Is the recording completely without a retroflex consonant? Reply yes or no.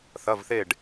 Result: no